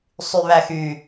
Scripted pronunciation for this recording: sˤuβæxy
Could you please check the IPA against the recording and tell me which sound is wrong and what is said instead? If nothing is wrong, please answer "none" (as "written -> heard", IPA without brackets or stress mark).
u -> y